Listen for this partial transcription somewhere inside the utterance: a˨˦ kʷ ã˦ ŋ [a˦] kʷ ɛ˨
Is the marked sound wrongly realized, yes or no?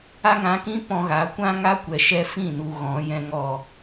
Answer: no